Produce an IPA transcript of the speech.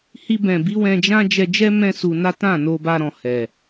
h i˧ b ɛ̃˨ b i˨˦ w ɛ̃˧ d͡ʒ ã˦ d͡ʒ ɛ˧ d͡ʒ ɛ˦ m ɛ̃˦ s u˧ n a˦ t ã˦˨ n o˧ b a˧ ɾ ɔ̃˨ h ɛ˨

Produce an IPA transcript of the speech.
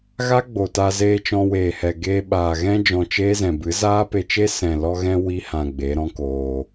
ɣ a˦ ɡ͡b o˨ t a˧ z eː˧ t͡ʃ ɔ̃˧ w eː˨ h ɛ˨ ɡ eː˧ ɓ aː˨ ɣ ɛ̃˦ d͡ʒ ɔ̃˧ t͡ʃ eː˦ z ɛ̃˨ b ɨ˨˦ z aː˦ p e˧ t͡ʃ e˦ s ɛ̃˨ l ɔ˧ ɣ ɛ̃˧ w i˦ h ã˨ ɡ͡b e˨˦ ɾ ɔ̃˦ k oː˧

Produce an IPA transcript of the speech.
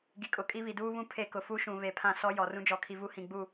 ɡ i˨ kʼ ʊ˨ kʼ i˦ β i˨ d uː˦ β ũ˦˨ pʰ e˦ k ʊ˨ f u˦ ʃ ũ˨ β e˨ pʰ ã˦˨ s ɔ˦ j ɔ˨ r ũ˦ d͡ʒ ɔ˨ kʰ i˨ v u˦ h ĩ˨ ɡ͡b u˦˨

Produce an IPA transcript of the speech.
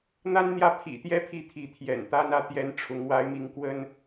n̪ a˦ n n̪ j ä˥˨ pʰ ḭ˨˩ t̪ j ɛ˦ pʰ i˥˨ t̪ʰ i˨˦ t̪ʰ j ɛ̰˨˩ n t̪ a˦ n ä˦ t̪ j ɛ˦ n ʈ͡ʂʰ ʊ˨˦ ŋ w a˨˦ ɪ̯ m i˨˦ ŋ k w ə˦ n

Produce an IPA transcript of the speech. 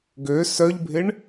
ɡ ø s œ ʎ bʱ ɪ ɳ

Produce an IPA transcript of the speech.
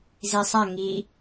z i sˤ a ŋ i

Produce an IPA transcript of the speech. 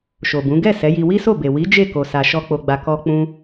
ʃ o˨ b ũ˨˦ ɡ ɛ˦˨ s ɛ˨˦ j i˧ w i˦ s o˦˨ b e˨ w i˨˦ d͡ʒ e˦˨ k o˨ s a˨ ʃ ɔ˧ k͡p o˧ ɡ͡b a˧ k ɔ˦ k͡p ũ˦

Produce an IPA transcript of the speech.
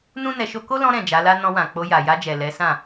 n ũ˦ n ɛ˧ ʃ o˦ k o˦ l ɔ̃˧ ɾ ɛ̃˨ d͡ʒ a˨˦ l a˦ n ɔ̃˧ w ã˨ k͡p o˧ j a˨ j a˧ d͡ʒ ɛ˨ l ɛ˨˦ s ã˦˨

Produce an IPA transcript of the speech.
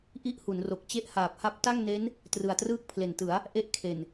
ʔ i˥˩ ʔ h u˩˦ n r o˨˩ k̚ t͡ɕ e˦˥ ʔ h aː˨˩ p̚ h a˦˥ p̚ t a˥˩ ŋ n e˦˥ n | t r ɯ˨˩ a̯ t r ɯː˥˩ k̚ pʰ l e˨˩ n t ɯ˩˦ a̯ | ʔ e˦˥ ʔ kʰ e˨˩ n

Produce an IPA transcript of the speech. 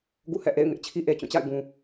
ɡ ṵ˦˨ h ɛ̰˦˨ ʔ ḛ˦˨ ɪ̯ ŋ ɪ˦ ʔ t͡ɕʰ i˦ ʔ e˨ t͡ɕ ũ˦˨ t͡ɕ a̰˦˨ ɪ̯ ɡ ũ˨

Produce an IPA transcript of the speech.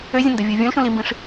ø zʲ ə̃ n d ə vʲ u vʲ ũ l ʃ ũ l i m b ĩ ʂ

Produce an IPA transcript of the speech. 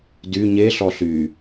d y ɲ e ɬ ɔ ɬ y

